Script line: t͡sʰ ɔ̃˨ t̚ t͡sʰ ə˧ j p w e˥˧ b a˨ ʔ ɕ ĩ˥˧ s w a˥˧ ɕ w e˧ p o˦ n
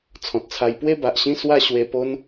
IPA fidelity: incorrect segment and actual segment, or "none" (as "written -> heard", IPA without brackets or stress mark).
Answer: ə˧ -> a˧